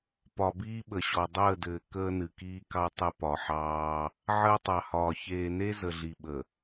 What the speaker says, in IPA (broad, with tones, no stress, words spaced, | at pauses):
pɒ˨biː˦ɓə˨ɕɔ˨ dˤəː˦˨dɘː˨ kəː˦nɨ˨kiː˦kɑ˦ tˤə˦ pɒ˨ħɑː˦ | ʕəː˦tˤɑ˨hɒː˨ çeː˨ne˦ zə˨ɮi˨ɓə˨